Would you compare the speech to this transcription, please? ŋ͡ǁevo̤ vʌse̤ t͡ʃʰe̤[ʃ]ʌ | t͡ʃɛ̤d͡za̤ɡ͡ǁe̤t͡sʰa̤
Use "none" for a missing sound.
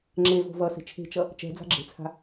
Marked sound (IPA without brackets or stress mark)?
t͡ʃ